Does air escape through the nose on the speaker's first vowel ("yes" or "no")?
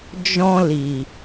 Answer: yes